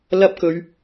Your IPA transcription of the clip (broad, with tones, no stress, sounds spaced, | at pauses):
l ɐ˥ p̚ k ɵ˨˧ ɥ